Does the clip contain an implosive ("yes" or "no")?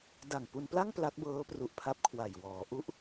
no